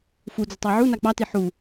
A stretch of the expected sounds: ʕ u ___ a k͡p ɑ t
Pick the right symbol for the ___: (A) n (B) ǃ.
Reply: A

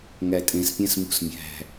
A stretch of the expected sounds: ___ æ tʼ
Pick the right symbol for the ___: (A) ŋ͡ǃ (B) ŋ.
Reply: B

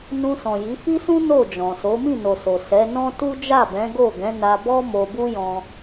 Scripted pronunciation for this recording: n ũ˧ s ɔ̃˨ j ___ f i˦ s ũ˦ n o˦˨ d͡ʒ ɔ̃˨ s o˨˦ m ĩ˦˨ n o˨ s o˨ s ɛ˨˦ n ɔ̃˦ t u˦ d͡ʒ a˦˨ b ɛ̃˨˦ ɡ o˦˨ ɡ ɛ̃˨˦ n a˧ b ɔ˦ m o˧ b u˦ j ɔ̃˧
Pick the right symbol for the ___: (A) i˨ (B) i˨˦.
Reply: B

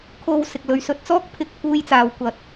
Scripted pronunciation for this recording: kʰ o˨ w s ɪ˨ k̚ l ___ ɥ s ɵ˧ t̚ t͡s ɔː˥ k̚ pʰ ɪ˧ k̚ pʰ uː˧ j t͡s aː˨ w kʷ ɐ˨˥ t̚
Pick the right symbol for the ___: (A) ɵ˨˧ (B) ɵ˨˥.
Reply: A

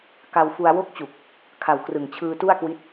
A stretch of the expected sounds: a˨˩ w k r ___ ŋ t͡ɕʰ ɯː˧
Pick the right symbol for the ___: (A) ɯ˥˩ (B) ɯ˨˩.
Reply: B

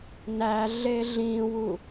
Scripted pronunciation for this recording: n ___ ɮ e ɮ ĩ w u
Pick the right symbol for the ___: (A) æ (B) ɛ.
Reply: A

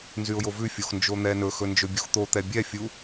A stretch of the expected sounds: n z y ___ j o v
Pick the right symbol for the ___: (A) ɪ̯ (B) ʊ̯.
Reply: B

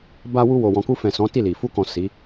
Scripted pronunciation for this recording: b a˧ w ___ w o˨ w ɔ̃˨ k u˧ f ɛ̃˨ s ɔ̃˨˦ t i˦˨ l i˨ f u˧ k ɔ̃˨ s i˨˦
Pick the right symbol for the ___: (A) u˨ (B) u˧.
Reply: B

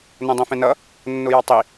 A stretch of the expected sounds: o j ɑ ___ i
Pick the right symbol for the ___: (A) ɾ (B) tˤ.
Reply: B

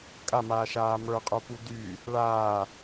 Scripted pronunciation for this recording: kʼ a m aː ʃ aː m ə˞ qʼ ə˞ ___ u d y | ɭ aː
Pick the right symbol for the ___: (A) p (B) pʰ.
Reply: A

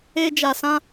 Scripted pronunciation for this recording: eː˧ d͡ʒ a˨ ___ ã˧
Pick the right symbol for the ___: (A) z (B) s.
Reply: B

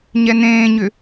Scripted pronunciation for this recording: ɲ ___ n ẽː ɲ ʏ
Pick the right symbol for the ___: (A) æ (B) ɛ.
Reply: B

